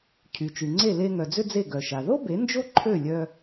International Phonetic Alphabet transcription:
cʰ y˩ t͡ʃ y˩ ŋ͡ǀ e˥˩ l e˧ ŋ œ˩ d͡z ʏ˧ d͡z e˥˩ ɡ œ˩ ʃ a˩ ð o˥ b e˩˥ n d͡ʒ o˥ ǃʰ ø˥˩ lʲ œ˧

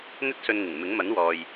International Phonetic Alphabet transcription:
n̪ ɵ˥ t̚ s ɵ˧ n ŋ ɪ˨˩ ŋ m ɪ˨˥ ŋ m ɐ˨˥ n w ɔː˨ j

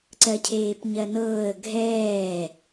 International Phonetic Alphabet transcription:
ǀ ɜ cʰ eː p ɲ ɜ n ɤː ə̯ ɡʱ ɛː

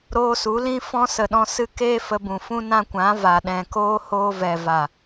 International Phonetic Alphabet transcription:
ɾ oː˧ s u˨˦ l ĩ˦ f ɔ̃˦ s ə˨ ɗ ɔ̃˧ s ɨ˧ k eː˦ f ə˧ b ũ˨ f ũ˦ n ã˧ kʷ ã˨˦ v a˨ ɗ ɛ̃˨ k oː˦ h oː˧ v ɛ˨ v a˨

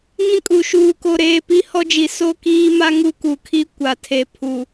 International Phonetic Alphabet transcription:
ŋ ĩ˦ kʼ u˨ ʃ uː˦ k o˦ ɾ eː˦ p i˦ h ɔ˦ d͡ʒ i˨ s o˦ k iː˦ m a˦ ŋ u˦ k u˨ kʰ i˦ kʷ a˨ tʰ e˨ pʰ u˨

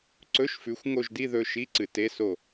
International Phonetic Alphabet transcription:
ǀ ɵ˧˥˧ ʃ f ʉ˨˥ xʷ ŋ o˦˨ ʒ d i˧˥˧ ð ɵ˧˥˧ ʃ i˧˥˧ ǀ ɨ˨˩˦ t e˧˥˧ s o˦˨

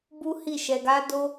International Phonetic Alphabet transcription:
b u˦ h i˦˨ ʃ ɛ˧ ɡ a˦ d o˦

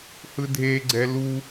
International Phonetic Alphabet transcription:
h ɯ dʱ e ɡ͡ǀ ɛ l u

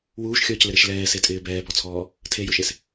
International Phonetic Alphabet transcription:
w uː ʃ xʲ ɔː c l ɪ ɾ e ʃ l ɛː s e tʼ ɪː b ɛː b ɔ t͡sʰ ɔː | tʰ e j ʊ ʃ e s

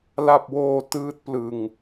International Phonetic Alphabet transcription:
l a˥˩ p̚ w oː˥˩ t ɯː˦˥ t̚ p l ɯ˧ ŋ

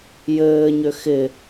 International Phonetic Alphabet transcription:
j ɘː ɲ ʏ x ɪ

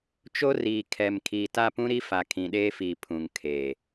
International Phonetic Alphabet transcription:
t͡ʃ o˦ r iː˨ kʰ ɛ˨ m kʰ iː˨ t a˦˨ p ũ˦ ɾ i˦ f a˨ kʰ ĩ˨ ɗ eː˦ f iː˨ pʰ ũ˨ ŋ kʰ eː˨

